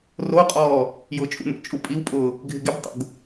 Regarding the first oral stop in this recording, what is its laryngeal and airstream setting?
ejective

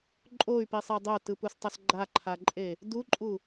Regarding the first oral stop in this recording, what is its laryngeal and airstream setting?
click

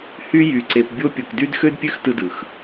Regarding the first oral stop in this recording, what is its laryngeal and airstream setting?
click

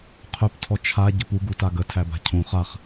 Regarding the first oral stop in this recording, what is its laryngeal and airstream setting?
aspirated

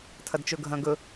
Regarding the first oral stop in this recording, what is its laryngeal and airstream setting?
aspirated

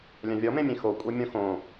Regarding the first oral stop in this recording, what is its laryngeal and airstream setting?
ejective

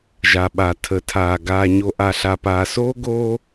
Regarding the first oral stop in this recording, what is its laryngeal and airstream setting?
implosive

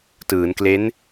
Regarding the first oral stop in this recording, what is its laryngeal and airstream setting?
plain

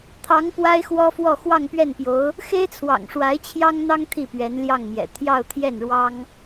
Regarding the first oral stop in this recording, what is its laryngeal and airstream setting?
aspirated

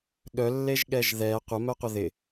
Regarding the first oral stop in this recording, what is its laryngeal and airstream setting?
implosive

